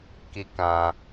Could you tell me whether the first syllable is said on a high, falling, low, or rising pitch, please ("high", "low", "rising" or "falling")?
high